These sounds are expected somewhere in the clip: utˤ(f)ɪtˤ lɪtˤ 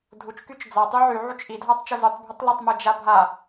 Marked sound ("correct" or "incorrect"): incorrect